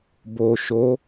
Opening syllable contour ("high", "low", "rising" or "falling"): low